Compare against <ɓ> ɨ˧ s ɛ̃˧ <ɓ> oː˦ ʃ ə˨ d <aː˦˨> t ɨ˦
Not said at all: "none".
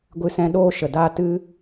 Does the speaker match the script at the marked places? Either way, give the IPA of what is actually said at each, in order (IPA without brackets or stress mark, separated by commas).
ɡʷ, ɗ, aː˦